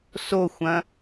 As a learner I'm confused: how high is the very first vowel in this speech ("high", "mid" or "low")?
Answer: mid